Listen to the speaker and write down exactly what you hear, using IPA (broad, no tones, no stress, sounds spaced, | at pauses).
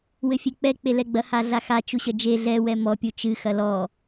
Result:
w ɘ fʲ e k͡p ɛ k͡p e l ɛ ɡ͡b ɐ h a ɮ a x a t͡ʃ u ɕ ɐ d͡ʒ e ɮ ɛ w ɛ m ɔ pʲ u t͡ʃ ɨ x ɐ l ɔ